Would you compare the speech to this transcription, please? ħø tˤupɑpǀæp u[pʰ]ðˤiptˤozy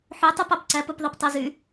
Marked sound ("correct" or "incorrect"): incorrect